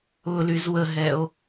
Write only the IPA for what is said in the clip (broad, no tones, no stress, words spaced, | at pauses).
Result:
ʊlyz wəɦɛo̯